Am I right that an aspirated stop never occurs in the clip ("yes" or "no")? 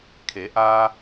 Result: no